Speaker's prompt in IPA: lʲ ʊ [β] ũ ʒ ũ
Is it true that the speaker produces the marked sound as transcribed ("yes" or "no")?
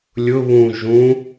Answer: yes